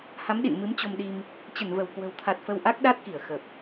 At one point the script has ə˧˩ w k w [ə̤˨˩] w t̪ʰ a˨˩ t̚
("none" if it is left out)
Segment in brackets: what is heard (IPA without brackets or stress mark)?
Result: ə̤˨˩